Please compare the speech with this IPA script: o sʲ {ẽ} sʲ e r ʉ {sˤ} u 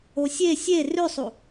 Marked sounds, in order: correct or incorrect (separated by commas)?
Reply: incorrect, correct